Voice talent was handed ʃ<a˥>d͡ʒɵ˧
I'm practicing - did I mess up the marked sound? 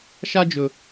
no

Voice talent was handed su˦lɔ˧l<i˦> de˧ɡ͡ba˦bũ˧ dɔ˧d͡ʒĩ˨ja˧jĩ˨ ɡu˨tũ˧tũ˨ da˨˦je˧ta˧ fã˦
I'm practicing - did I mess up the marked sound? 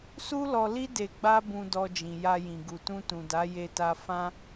no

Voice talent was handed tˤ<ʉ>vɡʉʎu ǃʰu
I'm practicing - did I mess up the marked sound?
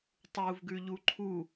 yes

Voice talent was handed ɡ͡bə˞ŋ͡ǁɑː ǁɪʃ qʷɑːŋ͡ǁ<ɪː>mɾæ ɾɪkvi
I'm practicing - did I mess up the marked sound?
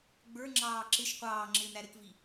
no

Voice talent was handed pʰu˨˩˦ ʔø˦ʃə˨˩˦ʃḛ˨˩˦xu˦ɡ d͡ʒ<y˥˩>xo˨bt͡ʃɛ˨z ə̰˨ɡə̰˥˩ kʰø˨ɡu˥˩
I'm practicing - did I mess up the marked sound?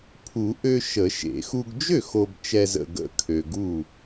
yes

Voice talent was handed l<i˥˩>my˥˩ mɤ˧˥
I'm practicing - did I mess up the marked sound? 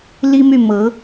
yes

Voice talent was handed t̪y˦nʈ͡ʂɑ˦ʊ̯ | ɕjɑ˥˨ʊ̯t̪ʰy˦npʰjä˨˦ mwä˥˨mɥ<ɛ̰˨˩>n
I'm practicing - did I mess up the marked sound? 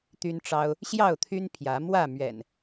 no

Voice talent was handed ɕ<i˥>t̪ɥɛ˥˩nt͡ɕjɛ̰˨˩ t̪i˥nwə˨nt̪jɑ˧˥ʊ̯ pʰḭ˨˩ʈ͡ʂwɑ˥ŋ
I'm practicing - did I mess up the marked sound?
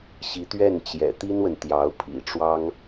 yes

